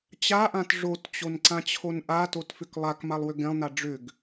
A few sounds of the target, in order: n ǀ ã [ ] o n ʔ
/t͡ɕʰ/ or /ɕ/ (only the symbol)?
t͡ɕʰ